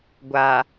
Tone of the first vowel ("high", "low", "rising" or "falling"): low